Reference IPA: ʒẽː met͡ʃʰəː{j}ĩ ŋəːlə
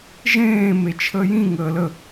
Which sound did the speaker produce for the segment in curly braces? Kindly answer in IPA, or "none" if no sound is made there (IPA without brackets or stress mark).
j